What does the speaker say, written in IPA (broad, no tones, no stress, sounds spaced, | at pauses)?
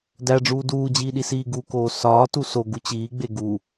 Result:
d æ ɖ͡ʐ uː d uː d͡ʑ iː ɗ i s iː ɡ u k oː s ɒː t u s o ɡ u t͡ɕ iː ɡ͡b e ɡ u